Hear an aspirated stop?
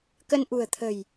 yes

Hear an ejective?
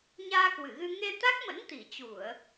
no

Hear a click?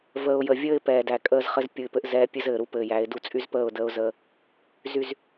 no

